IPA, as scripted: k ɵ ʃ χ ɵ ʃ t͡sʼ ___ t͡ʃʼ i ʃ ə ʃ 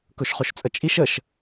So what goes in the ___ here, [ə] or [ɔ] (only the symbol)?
ə